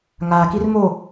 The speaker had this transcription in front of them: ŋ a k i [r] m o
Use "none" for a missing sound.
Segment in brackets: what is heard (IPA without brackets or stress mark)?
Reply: r